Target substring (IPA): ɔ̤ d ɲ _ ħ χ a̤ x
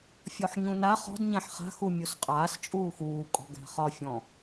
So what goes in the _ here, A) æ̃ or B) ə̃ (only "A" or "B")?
A